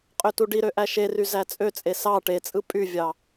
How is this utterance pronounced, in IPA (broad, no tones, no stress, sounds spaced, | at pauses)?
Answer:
qʼ ø t u ɖ i ɾ ø ʔ æ ʃ e r y z æ t͡sʼ ø t͡sʼ e s ɑ ʈ e t͡sʼ ɯ pʼ y vʲ ɑ